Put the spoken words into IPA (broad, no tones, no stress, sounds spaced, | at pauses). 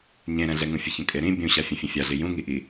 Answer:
ɲ ẽ ɾ ɛ̃ ɮ ɛ ŋ ũ fʲ ə ç ə̃ kʼ e ɾ ĩ bʲ ũ ɕ a fʲ ə̃ fʲ ə̃ fʲ a ɮ i j ũ ŋ i ʔ i